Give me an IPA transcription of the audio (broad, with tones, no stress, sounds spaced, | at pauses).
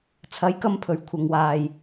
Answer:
t͡sʰ ɐ˨˥ j k ɐ˧ m pʰ ɵ˨˩ ɥ kʷʰ ɐ˨ ŋ w aː˨ j